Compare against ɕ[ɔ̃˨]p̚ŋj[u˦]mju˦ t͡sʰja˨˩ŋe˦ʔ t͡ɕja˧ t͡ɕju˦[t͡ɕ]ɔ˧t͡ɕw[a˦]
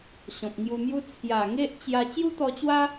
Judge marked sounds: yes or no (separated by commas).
yes, no, no, yes